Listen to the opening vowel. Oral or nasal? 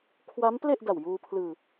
oral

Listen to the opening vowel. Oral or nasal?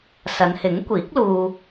oral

